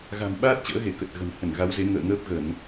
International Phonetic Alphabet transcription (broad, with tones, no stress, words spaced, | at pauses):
ɣa̤˨˩mɓaː˦˥t̚ t͡ɕə̰ː˧˥ɣe˧˩ kə˨˩t̚ɣə̤˨˩nhə˧˩n ɣa˨˦wze˨˦ ŋə̰ː˧˨ŋəː˦˥p̚ ɣə˧˩˨n